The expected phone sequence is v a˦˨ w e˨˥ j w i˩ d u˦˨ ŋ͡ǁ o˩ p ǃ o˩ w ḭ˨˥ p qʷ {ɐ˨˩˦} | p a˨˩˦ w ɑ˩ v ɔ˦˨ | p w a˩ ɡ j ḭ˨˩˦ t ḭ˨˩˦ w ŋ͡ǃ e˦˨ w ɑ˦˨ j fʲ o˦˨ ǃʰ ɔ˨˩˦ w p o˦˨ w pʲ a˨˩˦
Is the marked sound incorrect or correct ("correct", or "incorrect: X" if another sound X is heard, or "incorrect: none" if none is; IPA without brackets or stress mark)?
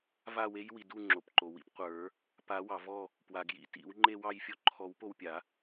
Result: incorrect: ə˞˨˩˦